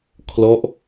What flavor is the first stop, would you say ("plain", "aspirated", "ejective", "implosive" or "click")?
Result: aspirated